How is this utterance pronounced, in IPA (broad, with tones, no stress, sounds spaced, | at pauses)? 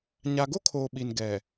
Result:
ɲ a˨ ɡ o˦ kʰ oː˨ ɓ i˨ n ɡ ɛ˨